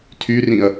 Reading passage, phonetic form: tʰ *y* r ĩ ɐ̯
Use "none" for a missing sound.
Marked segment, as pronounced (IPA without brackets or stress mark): y